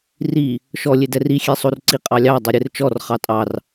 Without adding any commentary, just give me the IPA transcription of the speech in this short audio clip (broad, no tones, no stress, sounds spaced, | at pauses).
r i | ʃ ɔ lʲ e d ɛ r i xʲ e sˤ o r ǀ i qʼ ɑ lʲ ɑ dˤ ɛ ɾʲ e r t͡ʃ ɔ r χ ɑ tʼ ɑ r